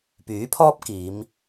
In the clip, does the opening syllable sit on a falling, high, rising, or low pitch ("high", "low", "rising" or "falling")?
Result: rising